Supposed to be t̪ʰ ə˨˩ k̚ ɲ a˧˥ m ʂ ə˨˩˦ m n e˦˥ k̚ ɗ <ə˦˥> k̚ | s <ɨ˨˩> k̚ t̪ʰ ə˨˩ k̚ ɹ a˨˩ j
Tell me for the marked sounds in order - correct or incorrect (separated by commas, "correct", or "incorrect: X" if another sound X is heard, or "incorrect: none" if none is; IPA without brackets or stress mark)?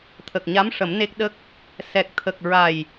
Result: correct, incorrect: ɛ˨˩